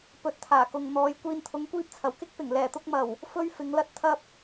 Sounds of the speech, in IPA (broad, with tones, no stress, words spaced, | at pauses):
pɵ˨˥t̚t̪ʰaː˨˩kʊ˨ŋ n̪ɔː˨˧j kʷiː˧nt̪ʰʊ˨˥ŋkʷiː˥p̚t͡sʰɐ˨˩w kɪ˥k̚pɪ˨˩ŋ lɛː˨˩t̪ʊ˧k̚mɐ˨˩w | fɵ˥ɥ fɪ˨˥ŋlɐ˥t̚ t̪ʰɐ˥p̚